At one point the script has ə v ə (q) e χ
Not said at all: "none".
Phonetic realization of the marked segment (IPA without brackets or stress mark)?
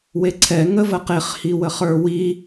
q